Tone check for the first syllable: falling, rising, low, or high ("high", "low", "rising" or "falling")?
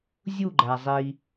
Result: falling